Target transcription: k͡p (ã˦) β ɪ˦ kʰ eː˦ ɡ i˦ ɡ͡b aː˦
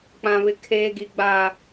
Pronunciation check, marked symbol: correct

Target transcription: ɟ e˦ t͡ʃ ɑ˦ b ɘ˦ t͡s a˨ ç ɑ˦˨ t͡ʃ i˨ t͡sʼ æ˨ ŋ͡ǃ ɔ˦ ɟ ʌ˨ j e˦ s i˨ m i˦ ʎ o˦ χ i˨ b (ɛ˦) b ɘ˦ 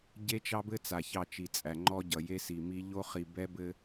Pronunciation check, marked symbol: correct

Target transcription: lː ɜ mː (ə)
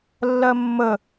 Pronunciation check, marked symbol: correct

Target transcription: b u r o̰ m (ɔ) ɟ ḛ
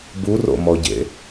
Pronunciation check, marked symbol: correct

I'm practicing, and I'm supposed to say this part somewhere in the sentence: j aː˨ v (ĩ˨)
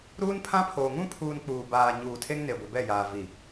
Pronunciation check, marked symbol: incorrect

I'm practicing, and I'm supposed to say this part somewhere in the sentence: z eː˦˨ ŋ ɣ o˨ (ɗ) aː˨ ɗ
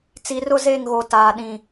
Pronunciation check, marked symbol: incorrect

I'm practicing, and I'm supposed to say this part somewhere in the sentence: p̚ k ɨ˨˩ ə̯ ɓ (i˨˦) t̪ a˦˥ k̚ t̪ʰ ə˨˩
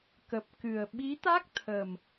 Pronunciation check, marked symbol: correct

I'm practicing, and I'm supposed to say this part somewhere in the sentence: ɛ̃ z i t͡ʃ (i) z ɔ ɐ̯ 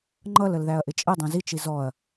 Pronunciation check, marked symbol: correct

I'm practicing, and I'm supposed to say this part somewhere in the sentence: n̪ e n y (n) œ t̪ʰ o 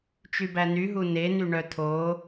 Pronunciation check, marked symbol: incorrect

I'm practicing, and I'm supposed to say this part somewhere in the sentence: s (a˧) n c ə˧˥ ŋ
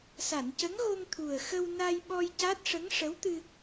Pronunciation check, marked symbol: incorrect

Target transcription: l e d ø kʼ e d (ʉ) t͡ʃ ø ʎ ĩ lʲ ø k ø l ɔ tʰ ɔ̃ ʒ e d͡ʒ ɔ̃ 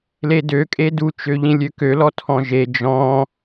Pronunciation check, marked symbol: incorrect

